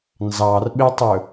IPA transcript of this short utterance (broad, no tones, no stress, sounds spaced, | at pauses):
n z ɑ r ɓ e tˤ ɵ